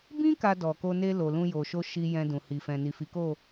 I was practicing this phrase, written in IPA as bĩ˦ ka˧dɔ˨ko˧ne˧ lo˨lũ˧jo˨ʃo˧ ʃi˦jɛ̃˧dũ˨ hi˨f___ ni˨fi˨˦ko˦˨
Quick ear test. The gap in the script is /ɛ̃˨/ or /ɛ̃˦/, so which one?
ɛ̃˨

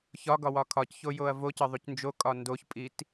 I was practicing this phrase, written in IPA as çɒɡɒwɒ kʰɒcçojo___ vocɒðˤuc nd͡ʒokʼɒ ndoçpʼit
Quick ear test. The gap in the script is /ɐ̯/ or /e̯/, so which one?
ɐ̯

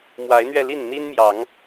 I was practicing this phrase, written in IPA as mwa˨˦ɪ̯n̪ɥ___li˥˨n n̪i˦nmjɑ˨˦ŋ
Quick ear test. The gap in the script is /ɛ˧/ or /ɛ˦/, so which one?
ɛ˧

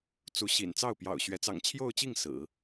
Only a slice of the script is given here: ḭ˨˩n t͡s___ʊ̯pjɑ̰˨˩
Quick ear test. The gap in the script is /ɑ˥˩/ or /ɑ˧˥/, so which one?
ɑ˥˩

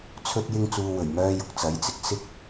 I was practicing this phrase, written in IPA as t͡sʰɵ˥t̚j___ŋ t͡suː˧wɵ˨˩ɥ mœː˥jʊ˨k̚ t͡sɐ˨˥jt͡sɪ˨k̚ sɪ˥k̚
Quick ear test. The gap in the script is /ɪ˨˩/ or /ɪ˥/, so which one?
ɪ˥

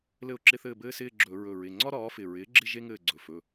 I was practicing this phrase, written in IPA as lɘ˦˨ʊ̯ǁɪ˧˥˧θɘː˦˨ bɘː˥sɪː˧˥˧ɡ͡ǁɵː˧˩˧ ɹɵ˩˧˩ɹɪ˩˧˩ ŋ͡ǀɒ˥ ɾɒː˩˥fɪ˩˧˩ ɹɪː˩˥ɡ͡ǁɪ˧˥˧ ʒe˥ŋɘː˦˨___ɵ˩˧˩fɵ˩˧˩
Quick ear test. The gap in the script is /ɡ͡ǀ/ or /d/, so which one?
ɡ͡ǀ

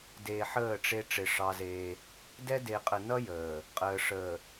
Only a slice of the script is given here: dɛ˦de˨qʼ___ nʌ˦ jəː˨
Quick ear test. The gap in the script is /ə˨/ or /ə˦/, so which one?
ə˨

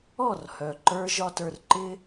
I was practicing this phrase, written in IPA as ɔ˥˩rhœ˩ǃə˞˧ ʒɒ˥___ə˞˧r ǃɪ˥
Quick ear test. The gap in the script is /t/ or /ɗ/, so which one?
t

